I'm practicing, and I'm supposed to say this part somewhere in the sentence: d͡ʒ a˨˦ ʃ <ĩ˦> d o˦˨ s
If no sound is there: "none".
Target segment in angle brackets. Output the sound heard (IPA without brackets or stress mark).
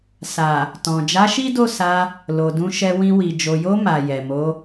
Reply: i˦